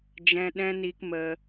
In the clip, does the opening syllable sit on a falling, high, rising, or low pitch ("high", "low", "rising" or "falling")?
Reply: high